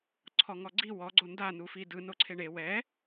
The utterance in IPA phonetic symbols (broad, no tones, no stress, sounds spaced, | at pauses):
ǀʰ ɔ ŋ ɔ ɡ͡ǀ i w ɔ ɡ͡ǀ o n d a n u f i d ɯ n o ǀʰ e ɳ e w ɛ